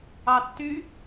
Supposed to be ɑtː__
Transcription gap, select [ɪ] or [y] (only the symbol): y